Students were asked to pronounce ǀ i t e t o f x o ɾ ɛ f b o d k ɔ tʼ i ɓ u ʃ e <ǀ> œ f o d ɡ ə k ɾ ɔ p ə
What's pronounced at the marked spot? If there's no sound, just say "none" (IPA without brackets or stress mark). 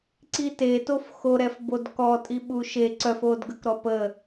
ǀ